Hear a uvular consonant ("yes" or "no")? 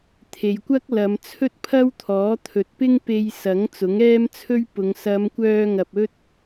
no